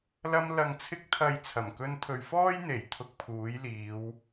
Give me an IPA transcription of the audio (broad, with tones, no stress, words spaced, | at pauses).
lɐ˧m lɐ˨ŋt͡sʰɪ˧k̚t̪ʰɐ˨j t͡sʰɐ˨˩mkɵ˧n t̪ʰɵ˨ɥfɔː˥j n̪e˨˩j t̪ʰʊ˧k̚pʰuː˨˥jliː˨˧w